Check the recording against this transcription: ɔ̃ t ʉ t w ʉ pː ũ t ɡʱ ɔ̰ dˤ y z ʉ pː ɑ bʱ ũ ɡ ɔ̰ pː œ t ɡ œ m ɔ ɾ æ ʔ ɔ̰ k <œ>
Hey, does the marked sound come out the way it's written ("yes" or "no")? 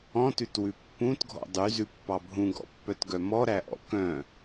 no